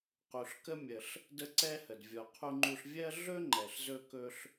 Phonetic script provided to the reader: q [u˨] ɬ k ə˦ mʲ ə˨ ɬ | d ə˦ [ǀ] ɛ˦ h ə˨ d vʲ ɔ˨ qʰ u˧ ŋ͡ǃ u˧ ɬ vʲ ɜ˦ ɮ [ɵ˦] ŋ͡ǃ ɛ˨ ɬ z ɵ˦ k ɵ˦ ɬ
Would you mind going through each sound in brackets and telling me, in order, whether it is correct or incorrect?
correct, correct, correct

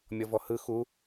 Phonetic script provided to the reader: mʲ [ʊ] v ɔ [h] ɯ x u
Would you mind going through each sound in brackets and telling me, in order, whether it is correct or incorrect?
incorrect, correct

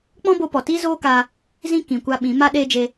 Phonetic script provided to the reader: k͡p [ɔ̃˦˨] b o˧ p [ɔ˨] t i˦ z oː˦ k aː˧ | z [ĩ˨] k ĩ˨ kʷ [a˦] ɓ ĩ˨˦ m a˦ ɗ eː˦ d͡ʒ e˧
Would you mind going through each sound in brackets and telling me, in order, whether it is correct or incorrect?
incorrect, correct, incorrect, incorrect

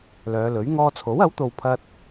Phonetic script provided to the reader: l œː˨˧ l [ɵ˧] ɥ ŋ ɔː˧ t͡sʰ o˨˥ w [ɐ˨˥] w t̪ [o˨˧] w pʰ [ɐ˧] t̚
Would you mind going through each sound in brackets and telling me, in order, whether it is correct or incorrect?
incorrect, correct, incorrect, correct

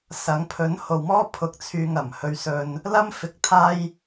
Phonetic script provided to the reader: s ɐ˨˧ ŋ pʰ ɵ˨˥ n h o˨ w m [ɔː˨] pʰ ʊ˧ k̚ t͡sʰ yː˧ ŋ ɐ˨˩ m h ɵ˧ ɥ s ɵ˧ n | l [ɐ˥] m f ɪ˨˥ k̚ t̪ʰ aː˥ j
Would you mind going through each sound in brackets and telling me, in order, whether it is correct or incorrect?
incorrect, correct

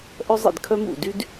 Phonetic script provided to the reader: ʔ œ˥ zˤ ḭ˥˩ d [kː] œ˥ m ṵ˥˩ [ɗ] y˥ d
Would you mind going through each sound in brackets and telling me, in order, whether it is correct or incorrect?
incorrect, incorrect

